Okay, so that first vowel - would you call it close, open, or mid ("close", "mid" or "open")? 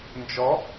mid